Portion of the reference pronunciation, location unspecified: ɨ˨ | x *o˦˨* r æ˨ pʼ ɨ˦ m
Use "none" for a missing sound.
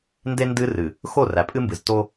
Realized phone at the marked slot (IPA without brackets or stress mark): o˦˨